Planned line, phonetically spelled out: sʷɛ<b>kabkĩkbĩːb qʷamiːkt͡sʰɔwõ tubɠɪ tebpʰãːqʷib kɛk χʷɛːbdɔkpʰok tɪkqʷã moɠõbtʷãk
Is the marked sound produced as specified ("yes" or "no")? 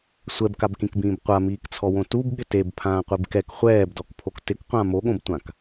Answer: yes